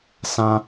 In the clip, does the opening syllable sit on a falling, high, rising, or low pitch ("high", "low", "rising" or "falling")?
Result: high